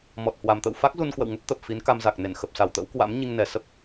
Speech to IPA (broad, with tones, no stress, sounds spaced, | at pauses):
m ɔ˨˩ t̚ h w a˨˩ m t̪ ə̰˧˨ w f a˦˥ k̚ z u˧ n k w ə̰˧˨ w ŋ ə˦˥ p̚ t̪ ə˨˩ p̚ f i˨˦ n k a˧ m z a˨˩ k̚ n e˧˩ n x ə˨˩ p̚ s a˧˩ w t̪ ə̰˧˥ w k w a̰˧˥ m ɲ i˧ ŋ n ɛ˨˩ s ə˦˥ p̚